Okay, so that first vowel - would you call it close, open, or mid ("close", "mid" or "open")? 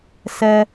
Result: mid